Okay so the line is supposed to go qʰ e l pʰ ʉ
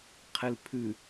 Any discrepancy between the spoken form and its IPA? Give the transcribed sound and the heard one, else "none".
none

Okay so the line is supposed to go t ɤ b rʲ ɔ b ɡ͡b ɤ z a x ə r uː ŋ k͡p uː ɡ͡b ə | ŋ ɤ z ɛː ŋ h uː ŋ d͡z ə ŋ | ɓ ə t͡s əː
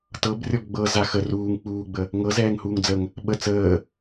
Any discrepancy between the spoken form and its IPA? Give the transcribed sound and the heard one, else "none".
none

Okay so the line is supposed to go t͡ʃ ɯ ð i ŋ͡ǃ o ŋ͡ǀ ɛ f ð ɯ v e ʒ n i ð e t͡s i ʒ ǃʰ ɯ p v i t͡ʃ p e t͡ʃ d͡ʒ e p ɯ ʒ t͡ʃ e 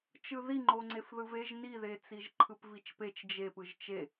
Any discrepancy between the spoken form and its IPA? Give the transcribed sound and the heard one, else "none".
ɛ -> e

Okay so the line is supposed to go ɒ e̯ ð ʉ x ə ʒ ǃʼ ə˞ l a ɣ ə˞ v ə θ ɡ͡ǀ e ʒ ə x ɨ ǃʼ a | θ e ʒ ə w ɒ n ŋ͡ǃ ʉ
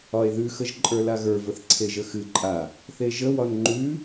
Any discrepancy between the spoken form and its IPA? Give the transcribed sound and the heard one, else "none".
ɡ͡ǀ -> ǀʰ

